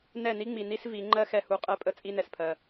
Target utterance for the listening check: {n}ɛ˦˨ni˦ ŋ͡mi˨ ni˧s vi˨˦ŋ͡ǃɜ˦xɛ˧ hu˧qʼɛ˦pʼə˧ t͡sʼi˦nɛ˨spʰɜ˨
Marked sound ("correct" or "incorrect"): correct